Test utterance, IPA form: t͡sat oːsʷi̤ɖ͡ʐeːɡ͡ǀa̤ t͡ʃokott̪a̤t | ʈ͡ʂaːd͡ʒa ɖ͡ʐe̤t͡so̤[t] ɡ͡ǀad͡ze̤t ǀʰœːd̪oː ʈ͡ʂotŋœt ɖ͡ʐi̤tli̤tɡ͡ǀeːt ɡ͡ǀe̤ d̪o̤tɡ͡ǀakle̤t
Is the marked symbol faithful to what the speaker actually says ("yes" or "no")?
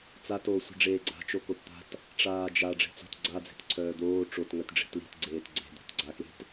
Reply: yes